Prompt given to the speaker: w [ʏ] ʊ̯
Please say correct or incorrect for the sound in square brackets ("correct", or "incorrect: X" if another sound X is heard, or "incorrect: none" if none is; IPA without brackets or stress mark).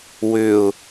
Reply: correct